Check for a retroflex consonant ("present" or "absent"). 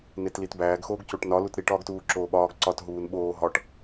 present